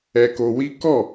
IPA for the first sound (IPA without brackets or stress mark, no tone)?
ɛ